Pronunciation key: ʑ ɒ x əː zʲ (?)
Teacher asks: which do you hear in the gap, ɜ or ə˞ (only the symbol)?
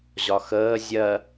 ɜ